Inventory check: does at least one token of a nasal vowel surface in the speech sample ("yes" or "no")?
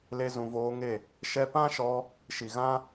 yes